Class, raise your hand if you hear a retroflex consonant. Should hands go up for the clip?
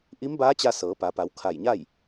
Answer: no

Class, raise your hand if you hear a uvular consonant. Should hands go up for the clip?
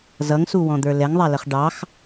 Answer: yes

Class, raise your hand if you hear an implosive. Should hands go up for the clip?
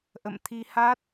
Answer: no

